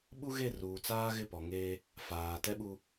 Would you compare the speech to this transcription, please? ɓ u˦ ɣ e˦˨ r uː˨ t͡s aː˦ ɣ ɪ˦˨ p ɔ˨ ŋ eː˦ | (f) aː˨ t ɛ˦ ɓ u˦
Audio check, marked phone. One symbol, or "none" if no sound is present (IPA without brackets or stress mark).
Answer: f